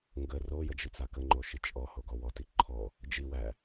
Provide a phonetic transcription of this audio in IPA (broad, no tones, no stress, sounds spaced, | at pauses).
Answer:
ŋ ɡ ə r o j ə d͡ʒ i t͡s a k ə ŋ͡ǃ o ʃ i t͡ʃʼ ɔ h o ɡ ɔ w ɔ t i ǃʰ ɔ | d͡ʒ i w æ